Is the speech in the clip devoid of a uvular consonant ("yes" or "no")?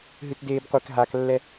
no